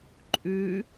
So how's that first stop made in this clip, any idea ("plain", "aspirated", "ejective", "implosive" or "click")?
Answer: click